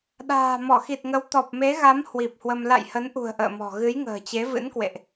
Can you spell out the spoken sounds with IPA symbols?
ɗ a̤ː˨˩ m ɔ˧˩ x i˨˩ t̚ ŋ ə˨˦ w t̪ ɔ˨˩ p̚ m e˨˦ ɣ a˨˦ m h w i˨˩ p̚ h w ə˧ m l a̰˧˨ j h ə˨˦ n ʔ ṳ˨˩ ə̯ ʔ ə̰ː˧˨ m ɔ̤˨˩ ɣ ɨ˨˦ j ŋ ə̤ː˨˩ t͡ɕ e˨˦ v ɨ̰˧˥ n k w ḛ˧˨ ʔ

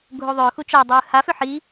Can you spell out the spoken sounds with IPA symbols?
ɡʱ u ðˤ ʏː x u t͡ʃ a dˤ ɯː h a f ʏ ħ i

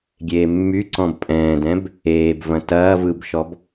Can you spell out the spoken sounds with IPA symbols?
ɡʲ eː mː y ǀ ɔ̃ b pʼ ɛ̃ː d ɛ̃ b | eː b v ɐ̃ t ɐː v ɯ b ʃ ɔ b

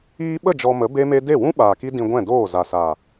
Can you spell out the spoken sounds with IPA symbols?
iː˧ ɓ ə˦˨ d͡ʒ ɔ˧ m ə˨˦ b e˦ m e˦ d e˦˨ w ũ˦ ɓ aː˨ k i˦ d ĩ˧ ɡʷ ɛ̃˦˨ d oː˦˨ z a˨ s a˨

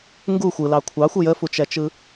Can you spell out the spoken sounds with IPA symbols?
ŋ ɡ u xʷ ɯ l ɑ kʷʰ ɑ xʷ ɯ j ə f u t͡ʃ ɛ t͡ʃ ɯ

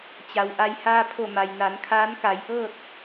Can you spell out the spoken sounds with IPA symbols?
t͡ɕ a˩ w ʔ a˧ j h aː˧ pʰ o˧˩ m a˩ j n a˩˧ n kʰ aː˧˥ n k a˩˧ j ʔ ɤː˥˨ t̚

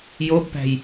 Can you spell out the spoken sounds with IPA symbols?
j o b p æ̤ j

